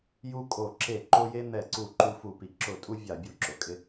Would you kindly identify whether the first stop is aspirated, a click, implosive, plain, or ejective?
ejective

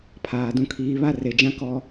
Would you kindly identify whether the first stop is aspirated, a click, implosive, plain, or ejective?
aspirated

